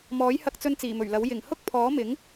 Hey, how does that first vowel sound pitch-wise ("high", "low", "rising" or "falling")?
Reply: rising